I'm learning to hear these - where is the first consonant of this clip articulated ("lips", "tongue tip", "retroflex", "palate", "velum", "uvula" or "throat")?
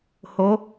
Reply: throat